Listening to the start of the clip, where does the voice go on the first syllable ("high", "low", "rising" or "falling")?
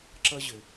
high